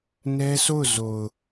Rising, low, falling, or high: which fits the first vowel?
high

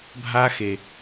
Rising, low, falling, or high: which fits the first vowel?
high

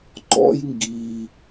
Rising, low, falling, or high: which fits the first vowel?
high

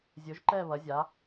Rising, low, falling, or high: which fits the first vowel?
rising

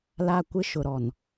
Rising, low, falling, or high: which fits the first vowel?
high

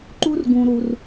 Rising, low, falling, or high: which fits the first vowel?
high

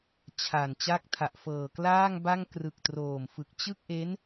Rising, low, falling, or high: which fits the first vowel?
low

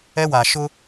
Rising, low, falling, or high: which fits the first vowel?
high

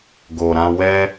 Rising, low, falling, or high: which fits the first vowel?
low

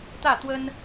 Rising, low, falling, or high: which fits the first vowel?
falling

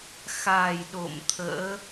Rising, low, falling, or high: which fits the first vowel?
low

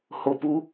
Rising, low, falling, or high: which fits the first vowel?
low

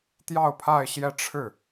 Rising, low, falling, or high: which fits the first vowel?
falling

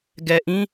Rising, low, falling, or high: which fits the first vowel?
low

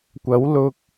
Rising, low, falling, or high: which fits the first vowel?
rising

